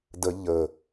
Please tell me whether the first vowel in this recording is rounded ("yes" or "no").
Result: no